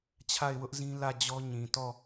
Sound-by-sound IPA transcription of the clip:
t͡ɕʰ a˦˨ ɪ̯ w ʊ˦ ʔ z ĩ˦ l ä˦˨ d͡ʑ ɔ˦ ɲ ĩ˨ t ɔ˦˨

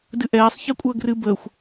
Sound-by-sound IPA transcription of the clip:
d ɨ ʔ ɛː sˤ ç ɛ kʷʼ əː ɡ r ɨ b əː xʷ

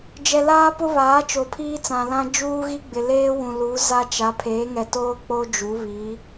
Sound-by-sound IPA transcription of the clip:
d͡ʒ ɛ˨ l aː˦ p ʊ˦ β aː˨˦ t͡ʃ o˨ pʰ iː˦ t͡s ã˨ l ã˦ d͡ʒ uː˦ ɣ i˦ ɡ͡b ɪ˨ l eː˦ w ũ˨ l u˨˦ z a˦ t͡ʃ a˨˦ pʰ eː˨˦ ŋ ɛ˨ t oː˦ k͡p o˦ d͡ʒ u˨˦ β iː˨˦

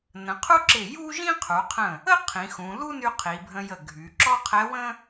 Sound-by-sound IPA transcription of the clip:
n ə̃˩˧ qʰ u˥ ǁ ɪ˧˩ j u˥ ʒ ĩ˥ qʰ u˩˧ qʰ ə̃˧˩ | ə˥ qʰ ĩ˩˧ x ũ˩˧ l u˥ n y˧ qʰ i˩˧ bʱ ə̃˧ j ə˧˩ ɡʱ y˩˧ ǁ ɔ˥ qʰ ɛ˧˥ w ə̃˥

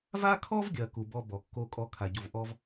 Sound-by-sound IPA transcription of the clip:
v a˥ kʰ ɔ˥ v ɡʲ ɐ˨ k u˨ b ɔ˦ b ɔ˩ kː o˦ kʼ ɔ˦ kʰ a˨ ɟ o˨ v ʔ ɔ˦ v

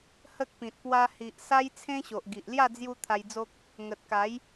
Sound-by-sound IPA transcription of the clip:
h ə˦ k̚ p ĩ˨ t̚ p w a˧ h i˨ ʔ s a˦ j t͡sʰ ẽ˦ ɕ o˨ ʔ ɡ i˨ ʔ l j a˥˧ d͡z j u˧ t̪ʰ a˧ j d͡z o˦ k̚ | ŋ ə˨ t̚ k a˨˦ j

